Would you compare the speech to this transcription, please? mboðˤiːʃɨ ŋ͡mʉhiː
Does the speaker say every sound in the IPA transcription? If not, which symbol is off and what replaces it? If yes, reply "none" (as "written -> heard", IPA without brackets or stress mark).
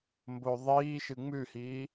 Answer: none